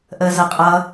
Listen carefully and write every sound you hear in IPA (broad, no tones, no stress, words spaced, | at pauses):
ʔəːzʌqʼʌ